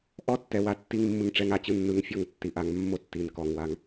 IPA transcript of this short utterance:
ʔ ɔ˦ tː ɛ˨ w a˦˨ tː i˦ ŋ mː ɯ˧ ŋ ʈ͡ʂ ɛ˧ ŋ a˨˦ t͡ɕ ɯ˧ nː ɯ˨ ŋ fʲ ɔ˦˨ ŋ tː i˨ ʔ a˧ ŋ mː o˦ tː i˨ n k ɔ˨ ŋ w a˧ ŋ

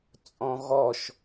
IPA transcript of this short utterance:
t͡sʼ ɔ̃ ɣ ɔ ʃ

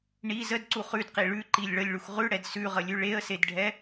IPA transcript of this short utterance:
ɳ i z ə d ǀ u χ ʉ d q i ɭ ʉ ǃ i lʲ ɭ ə lʲ ɭ u x ʁ ʉ ɽ ɛ d s ʉ ʁ ə lʲ ʉ ɭ e ə̯ s e d ɖʱ ɛ

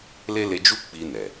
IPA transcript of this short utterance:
l e˦ l e˧ d͡ʒ u˦ k͡p i˧ n ɛ˨

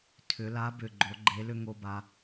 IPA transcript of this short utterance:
tʰ ʏ˩˧ l a˨˥ b ʏ˨˩ ɡ͡ǃ o˩˧ ɡ͡ǃ e˨˥ l ʏ˥ ŋ o˧ b a˧

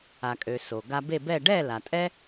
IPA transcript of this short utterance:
a˩ kʼ ø˩ s o˩ ɡ a˧ b e˥˩ b ɛ˥˩ ɖ ɛ˥˩ l a˩ tʼ ɛ˥

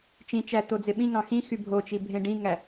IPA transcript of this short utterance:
t͡ʃ ĩ t͡ʃ æ t̪ o d͡z e ɓ ĩ ŋ ɑ̃ x ĩ x y bʱ o t͡ʃ i bʱ ẽ ɖ ĩ ŋ æ

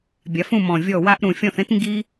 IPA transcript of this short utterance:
bʲ a˩˧ f ũ˦˨ m ɔ̃˨˩ vʲ ɔ˦˨ w a˥ ʔ ɾ ũ˨˩ fʲ ɔ̃˦˨ θ ẽ˥ t ŋ ɡ i˥

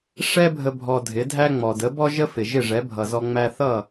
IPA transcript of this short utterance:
ʂ ɛ˥ bʱ ə˧ bʱ ɔ˧ dʱ ɪ˩˥ dʱ æ˥ ŋ͡m ɔ˩ d ə˩˥ b ɔ˥ ʒ ə˥ f ɪ˩ ʒ ɪ˥˩ ʐ ɛ˩˥ bʱ ʌ˩ z ɔ˧ ŋ͡m æ˧ θ ʌ˥˩

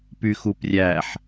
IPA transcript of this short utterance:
p y x u p rʲ æ ħ

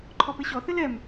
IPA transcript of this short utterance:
ǃʰ ɔ p e ɕ ɔ θ ɘ l ɛ m

